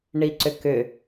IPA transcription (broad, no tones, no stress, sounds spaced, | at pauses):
ɳ i ǀ ʏ k ʏ